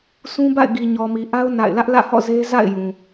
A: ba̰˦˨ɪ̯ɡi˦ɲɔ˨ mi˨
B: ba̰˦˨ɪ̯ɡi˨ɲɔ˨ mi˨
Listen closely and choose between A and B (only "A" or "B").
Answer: B